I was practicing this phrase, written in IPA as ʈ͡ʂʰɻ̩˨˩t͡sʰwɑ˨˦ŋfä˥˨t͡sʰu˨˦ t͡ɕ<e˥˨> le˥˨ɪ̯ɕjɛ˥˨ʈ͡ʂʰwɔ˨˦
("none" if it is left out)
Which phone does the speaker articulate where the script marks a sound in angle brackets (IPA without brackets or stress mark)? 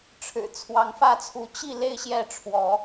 i˥˨